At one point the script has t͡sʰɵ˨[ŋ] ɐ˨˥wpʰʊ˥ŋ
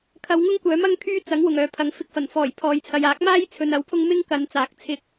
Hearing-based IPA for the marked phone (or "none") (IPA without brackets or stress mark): n